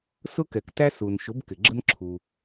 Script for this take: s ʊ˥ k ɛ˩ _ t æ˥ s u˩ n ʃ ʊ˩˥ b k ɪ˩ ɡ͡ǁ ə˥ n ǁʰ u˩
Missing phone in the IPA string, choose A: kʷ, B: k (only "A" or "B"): B